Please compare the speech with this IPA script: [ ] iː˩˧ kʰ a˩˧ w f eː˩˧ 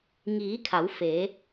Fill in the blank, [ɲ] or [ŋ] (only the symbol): ŋ